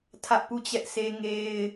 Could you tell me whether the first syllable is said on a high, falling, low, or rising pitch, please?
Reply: high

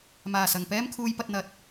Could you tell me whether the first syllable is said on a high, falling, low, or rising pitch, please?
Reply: low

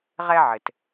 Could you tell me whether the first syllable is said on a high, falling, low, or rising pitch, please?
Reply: high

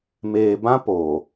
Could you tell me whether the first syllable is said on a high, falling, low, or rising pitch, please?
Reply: low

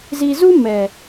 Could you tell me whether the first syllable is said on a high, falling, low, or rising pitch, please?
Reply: low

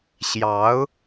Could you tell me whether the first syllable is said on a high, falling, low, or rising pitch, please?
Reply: rising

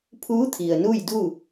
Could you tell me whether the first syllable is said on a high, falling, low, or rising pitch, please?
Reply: rising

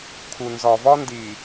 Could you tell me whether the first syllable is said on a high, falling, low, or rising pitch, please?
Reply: low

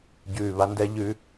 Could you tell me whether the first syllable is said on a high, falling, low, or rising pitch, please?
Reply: low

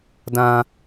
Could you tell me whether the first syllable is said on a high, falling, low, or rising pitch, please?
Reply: high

